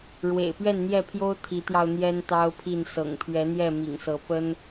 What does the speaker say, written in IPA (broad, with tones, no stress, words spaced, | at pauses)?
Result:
ɻwḛ˨˩ɪ̯pɥɛ˥˨nn̪jɛ˥˨pʰjo˦ʊ̯ t̪ʰi˨˦t̪jɑ˧ʊ̯ n̪jɛ˦nt̪ɑ˦ʊ̯pʰi˥˨n sɤ̰˨˩ŋpʰɥɛ˨˦n̪jɛ˥˨ mḭ˨˩ŋsɤ˨˦ pə˦n